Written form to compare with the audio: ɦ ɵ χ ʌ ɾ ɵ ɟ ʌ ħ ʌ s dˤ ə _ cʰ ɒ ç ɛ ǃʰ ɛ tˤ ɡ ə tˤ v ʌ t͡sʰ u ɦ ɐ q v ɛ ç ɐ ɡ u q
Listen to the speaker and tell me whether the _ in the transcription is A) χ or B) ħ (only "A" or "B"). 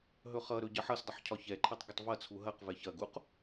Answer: B